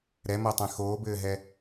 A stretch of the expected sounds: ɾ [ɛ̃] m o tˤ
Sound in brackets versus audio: incorrect: ɛ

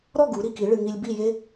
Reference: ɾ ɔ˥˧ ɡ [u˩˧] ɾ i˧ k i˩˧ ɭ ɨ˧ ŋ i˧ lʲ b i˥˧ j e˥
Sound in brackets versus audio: correct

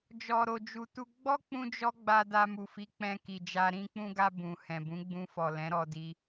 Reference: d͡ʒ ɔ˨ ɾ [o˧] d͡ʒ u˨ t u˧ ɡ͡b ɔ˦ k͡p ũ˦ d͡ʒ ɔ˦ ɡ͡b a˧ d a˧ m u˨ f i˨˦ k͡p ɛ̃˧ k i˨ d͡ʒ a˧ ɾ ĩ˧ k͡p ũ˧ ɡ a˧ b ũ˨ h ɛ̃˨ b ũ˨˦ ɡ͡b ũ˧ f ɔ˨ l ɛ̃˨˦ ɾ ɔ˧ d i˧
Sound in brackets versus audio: incorrect: o˨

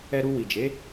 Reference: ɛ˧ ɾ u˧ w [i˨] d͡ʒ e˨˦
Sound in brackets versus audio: correct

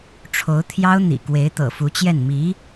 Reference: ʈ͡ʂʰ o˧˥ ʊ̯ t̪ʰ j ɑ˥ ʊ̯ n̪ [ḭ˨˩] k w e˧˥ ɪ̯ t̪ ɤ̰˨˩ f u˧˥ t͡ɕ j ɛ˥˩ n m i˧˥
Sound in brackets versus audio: correct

